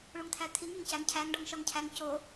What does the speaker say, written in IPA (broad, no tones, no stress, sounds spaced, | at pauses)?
ɭ u ŋ t̪ʰ æ t̪ʰ i ŋ e ŋ c æ ŋ cʰ æ ŋ ɖ ɒ ŋ ʃ ɒ ŋ cʰ æ ŋ c o